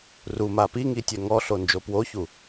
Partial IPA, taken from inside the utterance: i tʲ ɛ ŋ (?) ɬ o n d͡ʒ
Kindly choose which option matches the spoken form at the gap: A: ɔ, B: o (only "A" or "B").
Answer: A